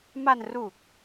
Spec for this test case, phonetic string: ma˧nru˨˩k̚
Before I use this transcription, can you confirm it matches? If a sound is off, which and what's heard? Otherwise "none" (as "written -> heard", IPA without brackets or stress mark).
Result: none